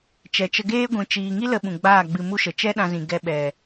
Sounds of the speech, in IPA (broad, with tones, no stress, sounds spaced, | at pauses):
t͡ʃ ɛ˨ t͡ʃ ə˧ ɡ eː˦ ɡʷ ĩ˨ t͡ʃ iː˨ ŋ i˦ l ə˧ ɓ ũ˨ ɡ͡b aː˦˨ ɡ͡b ɨ˧ m u˦ ʃ ə˨ t͡ʃ ɛ˦ ɗ ã˧ z ĩ˨ ɡ ɛ˧ ɓ ɛ˨